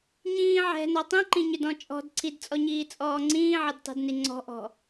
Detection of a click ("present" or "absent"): present